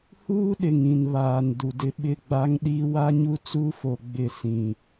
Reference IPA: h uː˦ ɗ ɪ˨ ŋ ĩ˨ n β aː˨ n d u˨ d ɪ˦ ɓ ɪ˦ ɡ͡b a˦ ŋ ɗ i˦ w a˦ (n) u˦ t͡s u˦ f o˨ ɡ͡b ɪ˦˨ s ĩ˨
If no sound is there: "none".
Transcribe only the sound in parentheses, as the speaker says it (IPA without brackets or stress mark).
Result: ɲ